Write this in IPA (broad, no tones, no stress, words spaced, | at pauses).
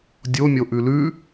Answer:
dʲomʲoʔʉ lʉ